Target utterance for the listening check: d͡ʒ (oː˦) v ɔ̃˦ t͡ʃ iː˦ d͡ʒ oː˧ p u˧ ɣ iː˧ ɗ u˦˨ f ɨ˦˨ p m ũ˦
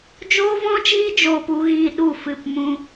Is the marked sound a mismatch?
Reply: no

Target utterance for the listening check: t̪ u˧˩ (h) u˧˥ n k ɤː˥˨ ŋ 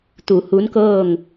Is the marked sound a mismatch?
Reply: no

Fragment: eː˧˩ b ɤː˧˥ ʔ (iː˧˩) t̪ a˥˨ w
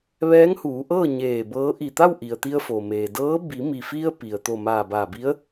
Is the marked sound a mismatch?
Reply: yes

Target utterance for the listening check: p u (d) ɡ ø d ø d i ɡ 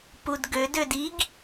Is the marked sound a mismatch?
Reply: no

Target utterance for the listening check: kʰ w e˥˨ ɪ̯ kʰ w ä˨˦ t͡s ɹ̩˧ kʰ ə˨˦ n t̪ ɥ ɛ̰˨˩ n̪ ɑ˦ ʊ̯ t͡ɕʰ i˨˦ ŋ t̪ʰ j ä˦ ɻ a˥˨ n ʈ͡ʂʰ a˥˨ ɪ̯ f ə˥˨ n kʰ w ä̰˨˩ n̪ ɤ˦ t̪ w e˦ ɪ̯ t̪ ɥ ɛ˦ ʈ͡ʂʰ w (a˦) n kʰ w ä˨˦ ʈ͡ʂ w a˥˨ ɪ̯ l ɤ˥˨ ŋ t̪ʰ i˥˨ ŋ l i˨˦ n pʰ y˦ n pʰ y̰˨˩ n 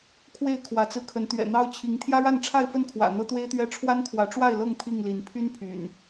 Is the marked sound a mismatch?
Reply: no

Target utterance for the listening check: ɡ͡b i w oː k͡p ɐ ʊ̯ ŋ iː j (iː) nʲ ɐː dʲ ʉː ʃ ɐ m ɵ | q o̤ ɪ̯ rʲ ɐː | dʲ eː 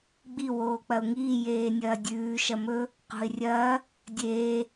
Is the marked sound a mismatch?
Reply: yes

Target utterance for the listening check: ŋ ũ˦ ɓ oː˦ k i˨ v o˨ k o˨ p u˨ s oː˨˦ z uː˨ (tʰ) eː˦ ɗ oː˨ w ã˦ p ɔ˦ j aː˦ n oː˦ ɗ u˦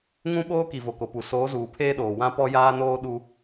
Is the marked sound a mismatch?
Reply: yes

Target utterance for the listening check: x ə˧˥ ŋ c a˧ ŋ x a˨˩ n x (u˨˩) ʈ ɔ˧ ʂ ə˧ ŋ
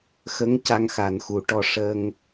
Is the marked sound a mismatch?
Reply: no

